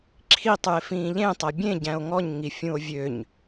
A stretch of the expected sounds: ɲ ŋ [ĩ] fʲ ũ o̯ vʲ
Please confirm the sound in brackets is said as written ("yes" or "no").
no